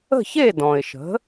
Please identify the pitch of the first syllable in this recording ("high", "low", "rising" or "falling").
falling